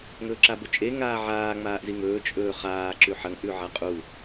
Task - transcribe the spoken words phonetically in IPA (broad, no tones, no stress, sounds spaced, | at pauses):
ŋ ɵː ǁ a b ɵ t͡ʃʼ e ŋ aː ʕ aː ŋ͡m aː ʔ z i ŋ ɵː t͡ʃʼ ɵː χ aː ǁ ʉ ħ ɐ ŋ ʔ ʉ ʕ a qʼ u